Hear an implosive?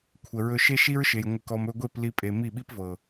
yes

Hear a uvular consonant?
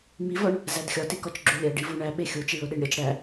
no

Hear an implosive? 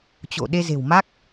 yes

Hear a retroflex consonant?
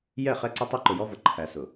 no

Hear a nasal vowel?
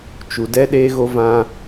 yes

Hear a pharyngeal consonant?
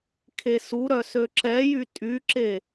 no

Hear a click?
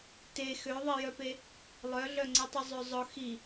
yes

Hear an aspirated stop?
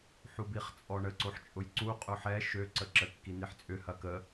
no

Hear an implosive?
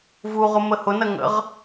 no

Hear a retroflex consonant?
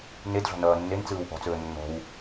no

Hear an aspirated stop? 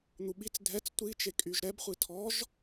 yes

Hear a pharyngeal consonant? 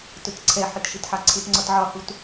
yes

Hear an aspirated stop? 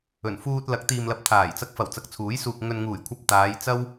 yes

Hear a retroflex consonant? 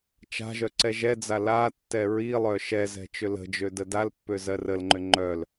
no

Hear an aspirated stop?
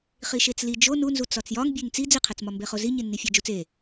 yes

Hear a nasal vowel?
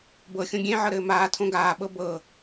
yes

